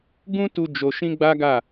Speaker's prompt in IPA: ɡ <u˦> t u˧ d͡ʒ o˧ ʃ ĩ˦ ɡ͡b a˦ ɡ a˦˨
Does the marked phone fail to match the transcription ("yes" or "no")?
yes